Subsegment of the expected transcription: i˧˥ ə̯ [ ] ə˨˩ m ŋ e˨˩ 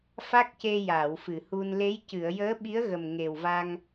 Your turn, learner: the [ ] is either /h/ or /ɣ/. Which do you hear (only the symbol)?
ɣ